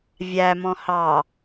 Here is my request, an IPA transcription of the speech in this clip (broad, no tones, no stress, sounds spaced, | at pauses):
vʲ æ m ɔ̃ h ɑ